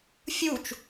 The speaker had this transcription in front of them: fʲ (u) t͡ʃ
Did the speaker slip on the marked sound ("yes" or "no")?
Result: no